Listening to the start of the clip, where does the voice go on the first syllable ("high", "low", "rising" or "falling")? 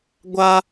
high